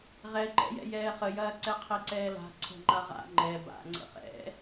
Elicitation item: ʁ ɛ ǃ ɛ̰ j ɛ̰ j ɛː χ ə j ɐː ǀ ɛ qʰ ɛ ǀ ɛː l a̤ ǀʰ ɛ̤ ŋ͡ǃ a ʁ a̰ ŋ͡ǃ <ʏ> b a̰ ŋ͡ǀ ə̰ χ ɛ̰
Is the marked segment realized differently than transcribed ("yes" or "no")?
yes